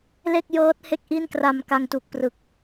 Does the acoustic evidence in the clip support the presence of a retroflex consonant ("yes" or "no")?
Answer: no